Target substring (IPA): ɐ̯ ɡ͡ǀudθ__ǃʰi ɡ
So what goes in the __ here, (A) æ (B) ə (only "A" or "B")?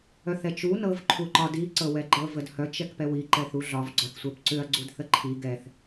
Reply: B